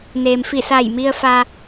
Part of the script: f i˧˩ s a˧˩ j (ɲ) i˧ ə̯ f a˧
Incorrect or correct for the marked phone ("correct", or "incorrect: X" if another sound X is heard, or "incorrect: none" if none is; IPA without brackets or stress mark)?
incorrect: m